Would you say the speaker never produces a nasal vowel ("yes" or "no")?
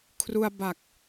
yes